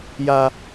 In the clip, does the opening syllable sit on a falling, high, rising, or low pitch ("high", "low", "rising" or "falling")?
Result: high